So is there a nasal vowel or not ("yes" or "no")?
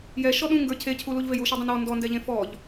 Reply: yes